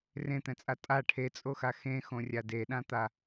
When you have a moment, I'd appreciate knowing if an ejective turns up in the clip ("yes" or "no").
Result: yes